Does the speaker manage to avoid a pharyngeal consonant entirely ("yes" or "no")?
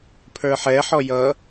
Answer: no